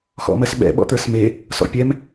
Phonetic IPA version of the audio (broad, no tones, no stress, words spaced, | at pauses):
xɔ̰mɜsɓɛ̰ ɓɔ̰t̪ə˞sme | sɔ̰pʲɛm